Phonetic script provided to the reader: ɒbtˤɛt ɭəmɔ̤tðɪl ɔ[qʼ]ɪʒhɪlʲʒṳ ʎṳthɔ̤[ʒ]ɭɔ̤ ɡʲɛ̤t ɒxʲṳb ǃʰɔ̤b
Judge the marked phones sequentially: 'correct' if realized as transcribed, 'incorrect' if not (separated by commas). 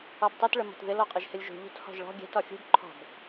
correct, correct